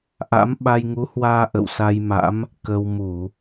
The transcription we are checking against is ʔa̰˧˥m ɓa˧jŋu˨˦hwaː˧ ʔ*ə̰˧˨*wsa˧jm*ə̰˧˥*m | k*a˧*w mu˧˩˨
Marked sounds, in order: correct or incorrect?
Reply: correct, incorrect, incorrect

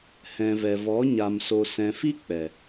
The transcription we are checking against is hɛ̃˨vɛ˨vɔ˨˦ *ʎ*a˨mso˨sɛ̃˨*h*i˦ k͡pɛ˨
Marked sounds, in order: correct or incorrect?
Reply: incorrect, incorrect

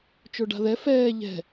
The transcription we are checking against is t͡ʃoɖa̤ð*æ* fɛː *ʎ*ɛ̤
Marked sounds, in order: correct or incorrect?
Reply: incorrect, correct

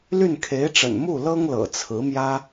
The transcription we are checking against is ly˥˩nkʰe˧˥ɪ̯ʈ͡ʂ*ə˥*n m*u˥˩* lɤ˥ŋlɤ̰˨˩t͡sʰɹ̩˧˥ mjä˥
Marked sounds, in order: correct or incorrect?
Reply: incorrect, correct

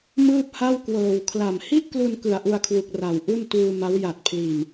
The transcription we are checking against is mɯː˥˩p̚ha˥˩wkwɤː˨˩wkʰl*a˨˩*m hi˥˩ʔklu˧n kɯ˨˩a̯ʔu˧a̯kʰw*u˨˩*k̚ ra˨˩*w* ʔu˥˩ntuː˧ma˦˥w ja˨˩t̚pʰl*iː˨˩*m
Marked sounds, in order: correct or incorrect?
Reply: correct, correct, correct, correct

